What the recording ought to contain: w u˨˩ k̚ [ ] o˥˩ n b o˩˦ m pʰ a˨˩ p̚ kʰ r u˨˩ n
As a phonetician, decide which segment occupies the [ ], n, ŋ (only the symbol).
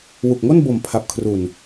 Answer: ŋ